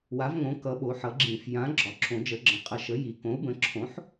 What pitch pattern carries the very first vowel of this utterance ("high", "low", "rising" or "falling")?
rising